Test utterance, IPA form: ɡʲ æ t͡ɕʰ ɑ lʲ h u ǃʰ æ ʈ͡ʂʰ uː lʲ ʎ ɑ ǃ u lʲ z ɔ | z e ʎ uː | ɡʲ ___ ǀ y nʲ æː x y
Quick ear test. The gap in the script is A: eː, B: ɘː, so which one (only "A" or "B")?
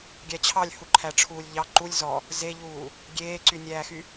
A